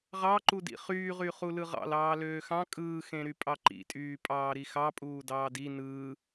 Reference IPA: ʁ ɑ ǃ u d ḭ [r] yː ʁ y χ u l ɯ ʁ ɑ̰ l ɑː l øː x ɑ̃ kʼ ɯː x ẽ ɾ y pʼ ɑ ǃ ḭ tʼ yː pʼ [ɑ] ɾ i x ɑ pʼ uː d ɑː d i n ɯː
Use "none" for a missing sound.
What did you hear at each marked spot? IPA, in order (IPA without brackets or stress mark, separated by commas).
χ, ɑː